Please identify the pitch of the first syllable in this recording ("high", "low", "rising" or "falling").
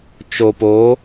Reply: low